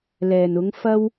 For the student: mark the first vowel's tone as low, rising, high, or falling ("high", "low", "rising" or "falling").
low